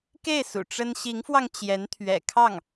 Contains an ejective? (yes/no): no